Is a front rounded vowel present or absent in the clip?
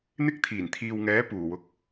absent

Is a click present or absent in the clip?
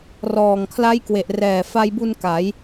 absent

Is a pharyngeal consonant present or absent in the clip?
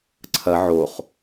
present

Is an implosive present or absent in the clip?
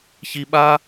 present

